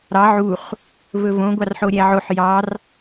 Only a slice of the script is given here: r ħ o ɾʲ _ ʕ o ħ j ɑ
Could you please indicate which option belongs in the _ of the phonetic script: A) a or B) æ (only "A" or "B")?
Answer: B